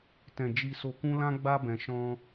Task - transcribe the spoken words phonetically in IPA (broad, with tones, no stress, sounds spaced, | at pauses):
t ɛ̃˨ d͡ʒ i˨ s o˨ k ũ˧ l ã˦ ɡ͡b a˦ b ɛ̃˧ ʃ ɔ̃˦